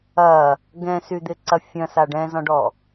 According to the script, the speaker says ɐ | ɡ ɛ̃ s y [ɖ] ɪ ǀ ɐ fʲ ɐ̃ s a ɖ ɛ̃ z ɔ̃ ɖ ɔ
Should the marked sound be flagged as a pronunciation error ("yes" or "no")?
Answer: yes